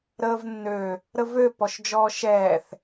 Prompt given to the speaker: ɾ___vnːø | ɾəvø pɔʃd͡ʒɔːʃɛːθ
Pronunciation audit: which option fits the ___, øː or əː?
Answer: əː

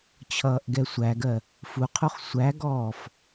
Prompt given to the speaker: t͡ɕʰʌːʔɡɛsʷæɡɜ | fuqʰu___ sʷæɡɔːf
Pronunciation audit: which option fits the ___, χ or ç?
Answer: χ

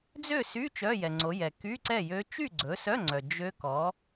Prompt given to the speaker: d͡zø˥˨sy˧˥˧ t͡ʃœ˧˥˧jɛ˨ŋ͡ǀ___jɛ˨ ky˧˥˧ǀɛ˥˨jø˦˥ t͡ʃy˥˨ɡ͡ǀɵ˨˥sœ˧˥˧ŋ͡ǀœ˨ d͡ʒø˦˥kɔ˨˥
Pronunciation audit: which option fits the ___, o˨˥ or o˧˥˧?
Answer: o˨˥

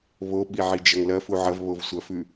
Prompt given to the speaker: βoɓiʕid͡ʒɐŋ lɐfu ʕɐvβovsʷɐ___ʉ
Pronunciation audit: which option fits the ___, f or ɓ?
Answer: f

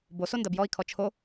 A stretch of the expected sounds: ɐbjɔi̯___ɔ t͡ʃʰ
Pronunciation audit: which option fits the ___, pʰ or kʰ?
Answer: kʰ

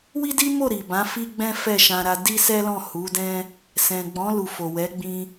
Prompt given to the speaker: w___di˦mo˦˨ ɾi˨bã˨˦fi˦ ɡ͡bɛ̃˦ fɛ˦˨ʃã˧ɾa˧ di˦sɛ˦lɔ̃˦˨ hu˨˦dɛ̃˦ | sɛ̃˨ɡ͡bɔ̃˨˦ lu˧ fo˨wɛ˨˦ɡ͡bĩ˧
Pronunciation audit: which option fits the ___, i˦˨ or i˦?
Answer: i˦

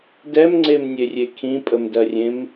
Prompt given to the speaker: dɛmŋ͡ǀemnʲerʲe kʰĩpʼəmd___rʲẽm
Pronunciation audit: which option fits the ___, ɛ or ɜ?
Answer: ɜ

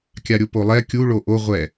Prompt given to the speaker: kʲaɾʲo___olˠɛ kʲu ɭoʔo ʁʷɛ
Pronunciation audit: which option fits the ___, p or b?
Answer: p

